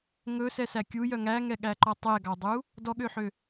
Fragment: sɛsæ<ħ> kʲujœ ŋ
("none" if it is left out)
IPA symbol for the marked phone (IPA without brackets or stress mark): none